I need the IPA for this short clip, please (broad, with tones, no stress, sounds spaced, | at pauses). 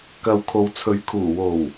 k ɐ˨ w kʰ o˨ w t͡sʰ ɵ˨˧ ɥ kʰ uː˨˩ w o˨˩ w